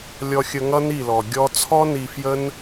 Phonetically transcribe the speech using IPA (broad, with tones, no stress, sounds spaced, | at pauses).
lʲ ɔ˧ xʲ ə˧ ŋ ʌ˦ n i˦˨ l ɔ˨ ɡʲ ɔ˧ t͡sʰ ɔ˦ n i˧ f j ə˦ n